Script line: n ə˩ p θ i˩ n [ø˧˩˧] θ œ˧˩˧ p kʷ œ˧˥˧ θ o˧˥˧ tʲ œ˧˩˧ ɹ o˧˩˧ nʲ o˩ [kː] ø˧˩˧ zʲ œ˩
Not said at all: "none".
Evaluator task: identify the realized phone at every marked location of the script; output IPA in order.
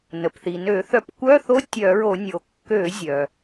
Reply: ø˧˩˧, kː

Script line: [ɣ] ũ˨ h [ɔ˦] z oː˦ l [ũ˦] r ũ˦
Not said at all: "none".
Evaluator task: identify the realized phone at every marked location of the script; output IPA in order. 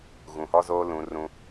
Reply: ɣ, ɔ˦, ũ˦

